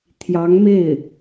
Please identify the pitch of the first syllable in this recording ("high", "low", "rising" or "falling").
rising